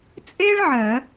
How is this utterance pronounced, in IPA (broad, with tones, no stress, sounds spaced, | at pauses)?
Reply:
t͡sʼ e˥ ɭ ʕ ɜ˨˩˦